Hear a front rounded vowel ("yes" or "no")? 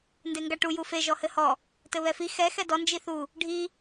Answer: no